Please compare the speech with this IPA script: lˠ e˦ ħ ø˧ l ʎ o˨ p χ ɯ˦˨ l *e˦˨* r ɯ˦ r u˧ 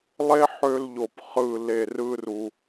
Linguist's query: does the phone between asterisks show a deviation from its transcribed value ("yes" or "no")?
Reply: no